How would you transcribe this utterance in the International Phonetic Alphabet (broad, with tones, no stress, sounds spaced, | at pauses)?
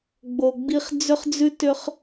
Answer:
ɡ͡b o˨ ɡ͡b i˦ χ d͡z ʏ˦ χ d͡z ʉ˦ t ʏ˦ χ